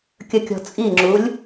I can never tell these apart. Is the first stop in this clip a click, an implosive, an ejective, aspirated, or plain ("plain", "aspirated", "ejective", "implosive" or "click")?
plain